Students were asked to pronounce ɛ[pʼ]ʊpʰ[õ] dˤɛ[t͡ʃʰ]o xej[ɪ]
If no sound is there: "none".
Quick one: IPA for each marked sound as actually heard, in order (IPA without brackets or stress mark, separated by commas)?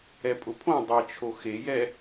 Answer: pʼ, õ, t͡ʃʰ, ɛ